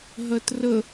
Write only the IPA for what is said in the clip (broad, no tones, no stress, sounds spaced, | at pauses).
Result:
ɦ ɜ t r ə